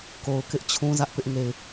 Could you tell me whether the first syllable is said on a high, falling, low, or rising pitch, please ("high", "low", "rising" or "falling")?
low